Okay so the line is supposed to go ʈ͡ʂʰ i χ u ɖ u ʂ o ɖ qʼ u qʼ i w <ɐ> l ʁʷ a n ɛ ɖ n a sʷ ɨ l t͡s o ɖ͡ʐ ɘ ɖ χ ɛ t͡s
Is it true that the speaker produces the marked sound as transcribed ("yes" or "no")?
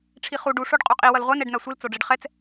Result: yes